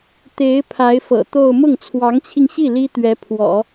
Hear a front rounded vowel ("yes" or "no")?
no